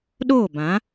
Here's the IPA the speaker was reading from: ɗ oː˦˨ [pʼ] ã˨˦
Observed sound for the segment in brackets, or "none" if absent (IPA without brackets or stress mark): b